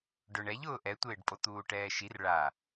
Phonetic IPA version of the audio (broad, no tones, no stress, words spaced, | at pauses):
ɖʊɳ ɛʎʊː ʔɛtʷɪːɖpʼo t̪uːʈɛːʃir ɭa